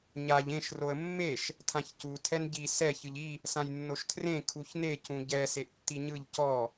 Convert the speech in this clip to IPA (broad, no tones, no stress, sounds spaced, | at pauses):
ɲ a ʎ ẽ ʃ r o ə̯ mː e ʃ | tʰ ã ç c u tʰ ɛ n ɟ i s ɛ ç ɯ ʎ i | s ã j nː o ʃ tʰ r ẽ kʰ u ç n e c ũ ɟ ɛ s e ʔ tː i ɲ ɯ ʎ c ɔ